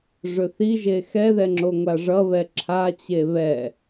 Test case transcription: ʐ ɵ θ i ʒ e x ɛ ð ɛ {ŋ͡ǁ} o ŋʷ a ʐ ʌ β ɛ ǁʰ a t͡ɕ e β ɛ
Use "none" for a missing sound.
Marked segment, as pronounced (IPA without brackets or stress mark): ŋ͡ǁ